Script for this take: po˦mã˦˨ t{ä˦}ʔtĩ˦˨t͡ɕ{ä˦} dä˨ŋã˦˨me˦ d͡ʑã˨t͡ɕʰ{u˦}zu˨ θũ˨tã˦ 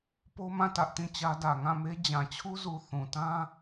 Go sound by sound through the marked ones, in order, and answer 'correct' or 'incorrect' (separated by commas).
correct, correct, correct